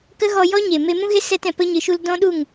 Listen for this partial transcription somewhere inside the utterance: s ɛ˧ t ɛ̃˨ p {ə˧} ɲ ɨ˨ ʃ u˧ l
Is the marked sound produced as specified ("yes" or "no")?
yes